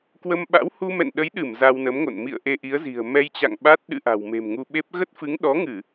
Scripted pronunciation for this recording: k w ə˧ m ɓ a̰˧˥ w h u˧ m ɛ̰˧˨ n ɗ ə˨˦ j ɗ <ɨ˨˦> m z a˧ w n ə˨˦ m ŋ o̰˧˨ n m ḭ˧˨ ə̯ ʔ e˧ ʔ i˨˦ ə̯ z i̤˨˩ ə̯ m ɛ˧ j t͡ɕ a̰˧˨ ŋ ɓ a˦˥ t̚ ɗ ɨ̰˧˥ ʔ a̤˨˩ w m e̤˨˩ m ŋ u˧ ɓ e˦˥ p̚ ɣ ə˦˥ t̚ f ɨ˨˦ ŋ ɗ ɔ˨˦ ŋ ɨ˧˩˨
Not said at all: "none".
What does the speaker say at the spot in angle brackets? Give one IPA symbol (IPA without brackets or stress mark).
ɨ˧˩